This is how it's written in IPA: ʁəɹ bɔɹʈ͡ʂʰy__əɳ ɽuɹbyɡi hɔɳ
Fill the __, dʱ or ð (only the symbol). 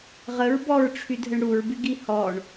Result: dʱ